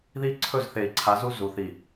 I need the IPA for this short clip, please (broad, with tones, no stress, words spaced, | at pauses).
ði˦ ǀʰɵ˦˨zθe˨i̯ǀʰa˨˦ zu˦zu˨θi˨